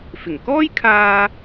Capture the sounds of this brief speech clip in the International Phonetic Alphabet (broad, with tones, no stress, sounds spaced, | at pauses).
f ɪ˨˩ ŋ k ɔː˥ j kʰ aː˧